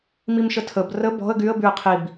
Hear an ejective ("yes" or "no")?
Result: no